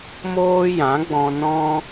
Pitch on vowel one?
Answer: high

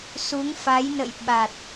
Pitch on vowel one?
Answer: rising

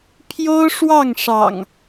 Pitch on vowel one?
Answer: high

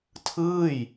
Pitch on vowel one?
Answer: falling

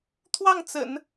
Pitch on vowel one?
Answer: falling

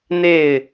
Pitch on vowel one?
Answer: falling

